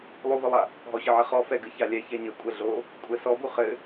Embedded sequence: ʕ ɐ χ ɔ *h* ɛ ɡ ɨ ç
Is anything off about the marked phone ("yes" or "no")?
yes